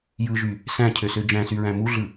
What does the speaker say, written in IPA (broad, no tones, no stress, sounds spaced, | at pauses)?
j ɯ ʒ y | s æ̃ cʰ ø s ø d͡ʒ æ̃ s y ɹ æ̃ m u ɮ ɯ